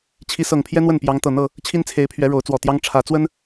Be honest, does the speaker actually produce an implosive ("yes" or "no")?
no